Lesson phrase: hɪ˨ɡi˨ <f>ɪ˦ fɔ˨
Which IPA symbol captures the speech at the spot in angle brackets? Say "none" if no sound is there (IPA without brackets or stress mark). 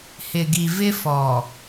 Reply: v